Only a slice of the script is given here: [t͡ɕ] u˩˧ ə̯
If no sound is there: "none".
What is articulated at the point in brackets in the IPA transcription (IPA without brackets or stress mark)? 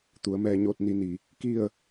t̪